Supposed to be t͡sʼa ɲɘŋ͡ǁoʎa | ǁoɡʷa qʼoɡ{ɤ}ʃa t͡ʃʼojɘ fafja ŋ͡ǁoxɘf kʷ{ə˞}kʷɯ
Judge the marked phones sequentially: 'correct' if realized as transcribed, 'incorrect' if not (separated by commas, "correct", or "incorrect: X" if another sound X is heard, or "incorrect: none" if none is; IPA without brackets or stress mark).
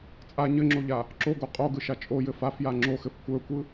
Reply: incorrect: ɯ, correct